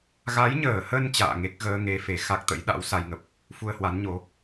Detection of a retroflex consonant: absent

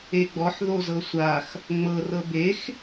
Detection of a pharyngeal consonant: present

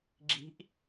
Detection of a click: present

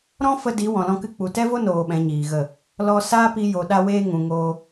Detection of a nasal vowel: present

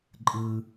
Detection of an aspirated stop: absent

